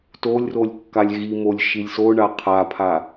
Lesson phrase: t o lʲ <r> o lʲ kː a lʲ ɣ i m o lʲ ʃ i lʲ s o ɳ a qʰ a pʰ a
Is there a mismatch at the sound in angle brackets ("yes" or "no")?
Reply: no